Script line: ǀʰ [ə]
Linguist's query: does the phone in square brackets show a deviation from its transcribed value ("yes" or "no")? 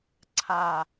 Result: yes